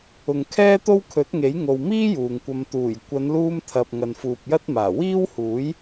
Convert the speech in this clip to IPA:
ʊ˨ ŋ kʰ ɛː˥ t̪ o˥ w kʰ ɵ˨˥ t̚ ŋ e˨˥ j ŋ o˨ w m iː˥ j uː˨ ŋ kʷ ɐ˧ m t̪ uː˨˩ j kʷ ɐ˨˧ n l uː˧ m t̪ʰ ɐ˨ p̚ ŋ ɐ˨ n f uː˨ p̚ j ɐ˥ t̚ m aː˨˩ w iː˥ w h uː˨˥ j

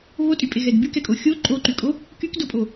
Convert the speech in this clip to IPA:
β o tʼ y pʼ e ɣ ɛ d b y k ɛ kʼ o xʲ o ǃʼ o ǃ y kʼ o | k y k d o pʼ o

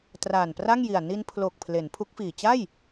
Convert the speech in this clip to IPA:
t r aː˨˩ n p r a˥˩ ŋ j i˨˩ a̯ n i˧ n pʰ l o˨˩ k̚ pʰ l e˩˦ n pʰ u˦˥ k̚ f iː˨˩ t͡ɕ a˥˩ j

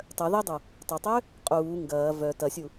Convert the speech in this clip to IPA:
tˤ œ ð ɛ dˤ u | tˤ ɐ tˤ ø | qʼ uː ŋ ɡ ɐː v œ t ɐ sʲ u

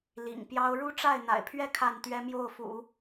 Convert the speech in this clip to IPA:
l ḭ˨˩ ŋ p j ɑ˥ ʊ̯ ɻ u˥ ʈ͡ʂ a˥˩ ɪ̯ n̪ a̰˨˩ ɪ̯ pʰ ɥ ɛ˥˧ kʰ a˥˩ n t̪ ɥ ɛ˥ m j o˥˩ ʊ̯ f ṵ˨˩˦

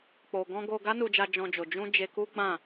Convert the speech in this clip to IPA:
k͡p o˨ ɡ ɔ̃˧ ɡ o˧ ɡ a˦ n u˧ d͡ʒ a˧ d͡ʒ ɔ̃˧ d͡ʒ o˨ d͡ʒ ũ˧ d͡ʒ e˧ k u˦ ɡ͡b ã˦˨

